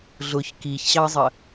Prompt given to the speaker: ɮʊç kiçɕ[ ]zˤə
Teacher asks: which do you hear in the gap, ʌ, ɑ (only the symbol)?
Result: ɑ